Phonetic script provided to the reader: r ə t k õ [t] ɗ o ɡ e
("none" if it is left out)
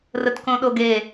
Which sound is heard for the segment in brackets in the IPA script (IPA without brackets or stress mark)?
none